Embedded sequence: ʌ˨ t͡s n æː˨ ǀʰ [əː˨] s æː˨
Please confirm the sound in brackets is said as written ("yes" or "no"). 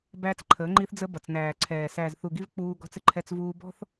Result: no